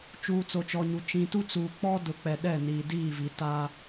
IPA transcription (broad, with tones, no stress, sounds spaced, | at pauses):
t͡ʃ uː˨ t͡s o˨ t͡ʃ ɔ˨ ɲ u˨ t͡ʃ ĩ˨ t u˦ t͡s uː˨ k͡p ɔ˦ d ʊ˨˦ k͡p ɛ˨ ɗ ɛ˦˨ n iː˨ d iː˦˨ v i˨ t a˦